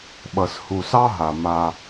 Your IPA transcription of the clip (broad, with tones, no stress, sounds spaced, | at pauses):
ɓ ʌ˨ s h u˨ s ɑ˦ ɦ a˨ m a˦